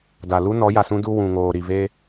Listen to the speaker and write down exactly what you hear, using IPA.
d a˨ l u˦ n ɔ˨˦ j a˨ s ũ˦ d u˦ w ũ˨ ŋ oː˨ ɾ i˨ v e˦

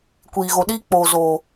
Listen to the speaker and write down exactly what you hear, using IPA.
kʷ iː˨ ɣ o˨ ɗ iː˦ k͡p oː˨ z oː˨

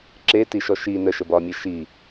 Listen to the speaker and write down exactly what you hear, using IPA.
ǁ e t i ʃ ɔ ʃ i n ə ʃ ə b ɒ mʲ e ʃ i

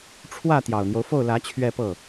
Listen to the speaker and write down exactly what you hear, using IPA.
ʈ͡ʂʰ w ä˥˩ t̪ j ɑ˨˩ ʊ̯ n̪ j o˦ ʊ̯ f o˥˩ ʊ̯ l ä˧˥ t͡ɕʰ ɥ ɛ˥˧ p ɤ˥˩

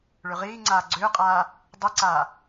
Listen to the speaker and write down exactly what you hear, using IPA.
ɭ ʏ ʁ iː ŋ͡ǀ aː ɡ͡ǀ ʏː qʼ aː | dˤ i ǀ aː

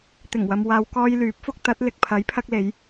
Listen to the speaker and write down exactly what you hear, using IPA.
t̪ ɪ˨˩ ŋ w ɐ˨ m w aː˨˧ w k ɔː˧ j l yː˨˥ p̚ f ʊ˧ k̚ t̪ ɐ˨˥ t̚ l ɪ˨ k̚ pʰ ɐ˨˥ j pʰ ɐ˧ k̚ l e˨˧ j

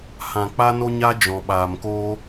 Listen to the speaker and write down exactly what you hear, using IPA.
h ã˨ k͡p a˦ n o˦ ɲ a˦ d͡ʒ ɔ̃˨ ɓ aː˨ m k oː˦

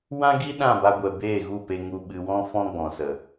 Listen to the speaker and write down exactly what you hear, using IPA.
w ã˦ ɡ i˦ ɗ ã˦˨ b a˧ ɡʷ ɛ˨ b eː˦˨ ɣ u˦˨ p e˧ ŋ u˧ ɓ ɨ˧ w ɔ̃˦ f ɔ̃˦ ɡ͡b ɔ̃˨ s ə˨

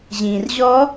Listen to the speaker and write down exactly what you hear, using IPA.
ʑ ĩ r ʑ ɔ

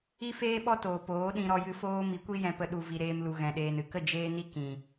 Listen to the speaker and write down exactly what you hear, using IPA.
i˦ f eː˦ ɓ ɔ˦ t oː˨ p oː˨˦ ɗ ĩ˧ ɾ ɔ˧ j ɨ˧ f oː˦ m i˨˦ kʷ i˦ j ɛ̃˧ p ə˧ ɗ u˨ v i˨ ɾ eː˧ m l u˨ ɣ ɛ̃˨ ɗ eː˨ n ɨ˧ k ə˦˨ d͡ʒ eː˦ n i˦ k ĩ˨

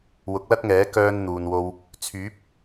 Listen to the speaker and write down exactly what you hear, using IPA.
w ʊ˨˥ k̚ l ɐ˥ t̚ ŋ ɛː˨˥ k œː˧ n n̪ uː˨ n w o˧ w | t͡sʰ yː˨˥ p̚

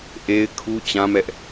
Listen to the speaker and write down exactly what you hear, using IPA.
ʔ e˦ ɪ̯ kʰ u˦ t͡ɕ ã˦ m ɛ˦ ʔ

